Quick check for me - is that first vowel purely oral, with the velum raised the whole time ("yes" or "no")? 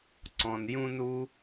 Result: no